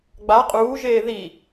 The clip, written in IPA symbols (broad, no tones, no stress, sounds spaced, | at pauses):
ɡ͡b a qʼ uː ʒ eː ð i